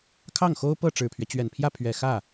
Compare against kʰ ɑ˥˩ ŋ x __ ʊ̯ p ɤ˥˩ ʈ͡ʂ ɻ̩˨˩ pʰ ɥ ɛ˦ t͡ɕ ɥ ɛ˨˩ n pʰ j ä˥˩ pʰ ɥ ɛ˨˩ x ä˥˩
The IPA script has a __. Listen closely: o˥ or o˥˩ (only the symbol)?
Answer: o˥